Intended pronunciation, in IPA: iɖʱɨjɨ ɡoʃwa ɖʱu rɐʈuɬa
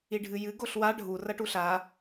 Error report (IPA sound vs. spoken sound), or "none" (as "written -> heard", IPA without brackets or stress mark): ʃ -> ɬ